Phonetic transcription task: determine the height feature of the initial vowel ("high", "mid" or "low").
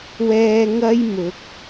mid